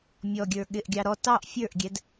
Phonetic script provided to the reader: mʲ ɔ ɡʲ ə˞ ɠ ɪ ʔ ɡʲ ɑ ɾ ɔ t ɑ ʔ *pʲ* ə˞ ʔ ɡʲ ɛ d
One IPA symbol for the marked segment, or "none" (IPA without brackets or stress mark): fʲ